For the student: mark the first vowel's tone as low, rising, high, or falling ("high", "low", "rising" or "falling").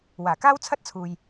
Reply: low